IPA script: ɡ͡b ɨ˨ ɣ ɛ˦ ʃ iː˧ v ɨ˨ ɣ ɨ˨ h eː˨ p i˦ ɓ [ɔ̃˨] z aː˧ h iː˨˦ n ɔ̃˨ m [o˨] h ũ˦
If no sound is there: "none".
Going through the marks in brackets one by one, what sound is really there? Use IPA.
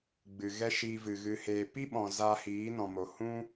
ɔ̃˨, o˨

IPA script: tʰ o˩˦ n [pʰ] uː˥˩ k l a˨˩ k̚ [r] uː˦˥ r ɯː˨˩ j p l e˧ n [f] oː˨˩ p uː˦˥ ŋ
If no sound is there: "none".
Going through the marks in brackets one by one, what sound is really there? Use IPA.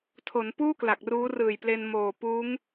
p, r, m

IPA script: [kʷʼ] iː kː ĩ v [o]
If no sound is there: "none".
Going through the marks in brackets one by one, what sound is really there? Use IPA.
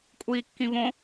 kʷʼ, õ

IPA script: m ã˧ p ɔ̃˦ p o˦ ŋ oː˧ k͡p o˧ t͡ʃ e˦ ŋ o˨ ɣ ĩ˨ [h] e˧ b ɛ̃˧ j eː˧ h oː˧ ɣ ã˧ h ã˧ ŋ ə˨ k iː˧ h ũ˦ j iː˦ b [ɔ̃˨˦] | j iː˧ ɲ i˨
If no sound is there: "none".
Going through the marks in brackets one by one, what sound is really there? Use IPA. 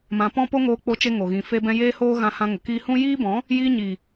f, ɔ̃˨˦

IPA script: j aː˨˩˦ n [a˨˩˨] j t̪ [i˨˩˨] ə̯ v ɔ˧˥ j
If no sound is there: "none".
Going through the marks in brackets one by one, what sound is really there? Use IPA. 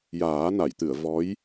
a˨˩˨, ɨ˨˩˨

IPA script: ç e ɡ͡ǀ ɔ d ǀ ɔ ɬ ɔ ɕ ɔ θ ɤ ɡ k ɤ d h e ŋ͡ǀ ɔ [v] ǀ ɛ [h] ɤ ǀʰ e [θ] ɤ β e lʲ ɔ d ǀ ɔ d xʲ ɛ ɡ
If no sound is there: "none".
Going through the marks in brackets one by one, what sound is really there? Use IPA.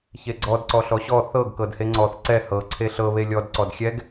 θ, h, ɬ

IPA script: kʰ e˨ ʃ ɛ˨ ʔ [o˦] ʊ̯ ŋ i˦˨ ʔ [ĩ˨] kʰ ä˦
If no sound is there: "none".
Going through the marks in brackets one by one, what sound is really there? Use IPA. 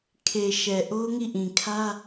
o˦, ĩ˨

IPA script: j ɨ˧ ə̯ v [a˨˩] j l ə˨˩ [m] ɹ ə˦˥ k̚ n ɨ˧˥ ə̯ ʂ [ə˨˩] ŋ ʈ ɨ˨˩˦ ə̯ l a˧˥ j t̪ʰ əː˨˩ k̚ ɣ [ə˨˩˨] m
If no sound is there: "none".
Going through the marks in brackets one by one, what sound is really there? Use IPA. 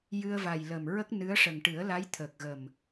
a˨˩, m, ə˨˩, ə˨˩

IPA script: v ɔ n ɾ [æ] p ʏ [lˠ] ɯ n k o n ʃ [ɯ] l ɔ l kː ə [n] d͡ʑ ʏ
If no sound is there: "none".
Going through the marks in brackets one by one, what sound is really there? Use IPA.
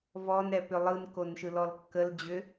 ɛ, lˠ, ɯ, l

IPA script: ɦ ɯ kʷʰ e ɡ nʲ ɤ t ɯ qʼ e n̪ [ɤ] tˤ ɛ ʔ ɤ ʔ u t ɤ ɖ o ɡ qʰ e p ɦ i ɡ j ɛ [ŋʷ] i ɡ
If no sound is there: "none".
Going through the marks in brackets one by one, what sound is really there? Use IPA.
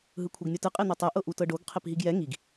o, ŋ

